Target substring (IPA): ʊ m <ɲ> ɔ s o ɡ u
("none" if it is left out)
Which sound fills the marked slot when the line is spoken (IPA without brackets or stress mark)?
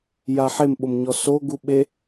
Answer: ɲ